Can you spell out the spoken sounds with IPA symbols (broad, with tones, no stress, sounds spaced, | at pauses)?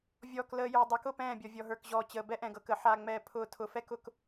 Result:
vʲ ɔː˨ k l əː˨ j ʊː˨ dˤ ə˨˦ k ʊ˦˨ p ɛ̃ː˦˨ bʲ ɔ˨ vʲ ɔ˨ ɦ ə˞˨ k ʑ ɔː˨ t͡ɕ əː˨ b ɛ˦ ʔ ɛ̃˨ ɡ ɤ˨ k əː˨ ħ a˨ ŋ͡m ɛː˨ pʰ ʊː˨ tʰ ʊ˨ f ɛ˦ k ʊ˦˨ k